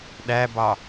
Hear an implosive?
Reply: yes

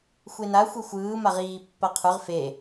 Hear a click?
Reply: no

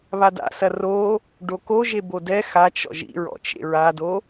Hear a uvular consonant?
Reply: no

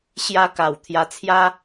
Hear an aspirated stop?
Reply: yes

